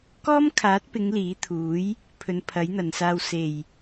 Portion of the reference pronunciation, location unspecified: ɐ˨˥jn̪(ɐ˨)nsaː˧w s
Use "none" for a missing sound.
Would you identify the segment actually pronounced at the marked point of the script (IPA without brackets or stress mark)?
ɐ˨˩